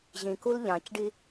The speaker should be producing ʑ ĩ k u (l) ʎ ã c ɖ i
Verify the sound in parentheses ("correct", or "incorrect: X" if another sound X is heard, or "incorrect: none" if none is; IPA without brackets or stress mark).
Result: correct